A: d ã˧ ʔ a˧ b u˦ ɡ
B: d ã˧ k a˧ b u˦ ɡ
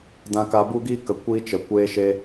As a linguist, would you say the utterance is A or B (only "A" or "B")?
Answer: B